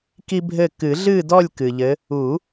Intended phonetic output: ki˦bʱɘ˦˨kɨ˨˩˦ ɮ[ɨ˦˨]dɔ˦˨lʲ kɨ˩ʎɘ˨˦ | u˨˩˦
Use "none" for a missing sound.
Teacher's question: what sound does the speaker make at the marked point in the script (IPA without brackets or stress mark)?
ɨ˦˨